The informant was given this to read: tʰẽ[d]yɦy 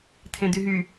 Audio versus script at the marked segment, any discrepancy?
no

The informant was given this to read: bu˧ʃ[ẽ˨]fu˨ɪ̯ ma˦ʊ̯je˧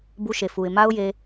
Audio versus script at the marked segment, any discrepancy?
yes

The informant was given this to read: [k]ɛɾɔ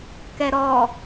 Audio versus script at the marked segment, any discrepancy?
no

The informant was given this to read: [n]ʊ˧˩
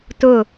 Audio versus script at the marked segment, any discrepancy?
yes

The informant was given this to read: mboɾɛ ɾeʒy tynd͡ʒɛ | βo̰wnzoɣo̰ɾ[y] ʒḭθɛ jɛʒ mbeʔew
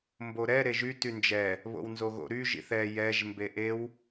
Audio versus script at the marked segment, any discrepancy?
no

